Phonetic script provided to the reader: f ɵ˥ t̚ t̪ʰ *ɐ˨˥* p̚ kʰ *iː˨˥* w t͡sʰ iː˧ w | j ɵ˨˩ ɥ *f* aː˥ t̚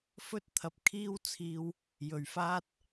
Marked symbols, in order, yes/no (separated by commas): no, no, yes